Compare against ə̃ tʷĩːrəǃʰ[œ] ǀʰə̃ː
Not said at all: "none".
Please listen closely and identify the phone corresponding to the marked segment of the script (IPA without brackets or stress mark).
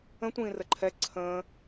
ɛ